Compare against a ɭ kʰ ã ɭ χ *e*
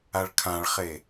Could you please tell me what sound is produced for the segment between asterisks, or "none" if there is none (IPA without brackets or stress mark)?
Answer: e